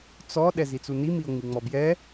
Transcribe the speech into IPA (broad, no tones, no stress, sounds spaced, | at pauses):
t͡s ɔ ɗ ɛ z i t͡s u n i m i o̯ ŋ͡m i ŋ͡m ɔ b j ɛ